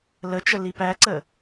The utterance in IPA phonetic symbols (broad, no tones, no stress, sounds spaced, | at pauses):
l ə t͡ʃ ə l i p æ ǀ ə